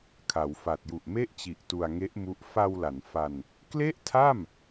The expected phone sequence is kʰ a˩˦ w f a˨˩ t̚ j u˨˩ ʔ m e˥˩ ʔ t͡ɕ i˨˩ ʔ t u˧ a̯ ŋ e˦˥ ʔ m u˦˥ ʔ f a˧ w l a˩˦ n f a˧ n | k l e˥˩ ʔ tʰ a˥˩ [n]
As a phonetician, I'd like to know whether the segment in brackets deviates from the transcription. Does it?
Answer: yes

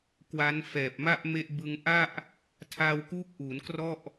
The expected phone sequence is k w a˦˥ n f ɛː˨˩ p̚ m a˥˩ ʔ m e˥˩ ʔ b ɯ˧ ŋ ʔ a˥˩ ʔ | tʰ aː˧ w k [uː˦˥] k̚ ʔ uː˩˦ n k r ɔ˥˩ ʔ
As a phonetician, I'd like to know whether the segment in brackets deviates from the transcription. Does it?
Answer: no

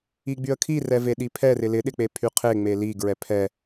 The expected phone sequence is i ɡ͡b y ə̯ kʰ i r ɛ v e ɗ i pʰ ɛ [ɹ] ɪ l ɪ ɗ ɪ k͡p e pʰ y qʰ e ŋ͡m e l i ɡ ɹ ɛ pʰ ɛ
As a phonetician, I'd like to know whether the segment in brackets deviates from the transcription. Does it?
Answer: yes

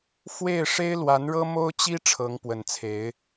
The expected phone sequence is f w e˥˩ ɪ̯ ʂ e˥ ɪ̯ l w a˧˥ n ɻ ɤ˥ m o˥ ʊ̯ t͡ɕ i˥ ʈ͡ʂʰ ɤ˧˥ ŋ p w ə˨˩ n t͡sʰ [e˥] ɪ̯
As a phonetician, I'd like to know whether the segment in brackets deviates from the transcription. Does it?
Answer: yes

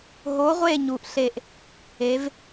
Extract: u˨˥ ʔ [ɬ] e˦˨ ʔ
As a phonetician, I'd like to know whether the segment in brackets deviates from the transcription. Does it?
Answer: no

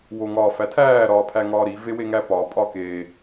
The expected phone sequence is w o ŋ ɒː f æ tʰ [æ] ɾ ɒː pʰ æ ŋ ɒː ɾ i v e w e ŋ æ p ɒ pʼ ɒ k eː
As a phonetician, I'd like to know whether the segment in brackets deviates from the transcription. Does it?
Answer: yes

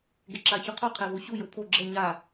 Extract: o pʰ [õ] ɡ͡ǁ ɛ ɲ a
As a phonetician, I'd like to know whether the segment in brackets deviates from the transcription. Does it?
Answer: yes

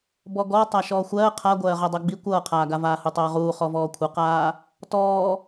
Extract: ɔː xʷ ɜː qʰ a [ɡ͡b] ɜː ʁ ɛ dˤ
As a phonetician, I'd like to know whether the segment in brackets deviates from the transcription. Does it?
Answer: yes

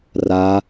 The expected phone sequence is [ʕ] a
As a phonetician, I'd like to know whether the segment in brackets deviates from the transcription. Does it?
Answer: yes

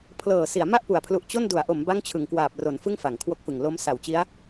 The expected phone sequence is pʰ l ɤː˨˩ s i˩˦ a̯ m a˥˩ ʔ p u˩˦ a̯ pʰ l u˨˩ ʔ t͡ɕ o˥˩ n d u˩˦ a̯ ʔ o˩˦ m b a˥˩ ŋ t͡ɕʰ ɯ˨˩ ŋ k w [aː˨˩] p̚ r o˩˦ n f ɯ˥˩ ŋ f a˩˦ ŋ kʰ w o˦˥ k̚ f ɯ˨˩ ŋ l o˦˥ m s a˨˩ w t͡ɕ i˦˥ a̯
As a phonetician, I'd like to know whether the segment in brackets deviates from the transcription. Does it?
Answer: no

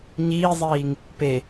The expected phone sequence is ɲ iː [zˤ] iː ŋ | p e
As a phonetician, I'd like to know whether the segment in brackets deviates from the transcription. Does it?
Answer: no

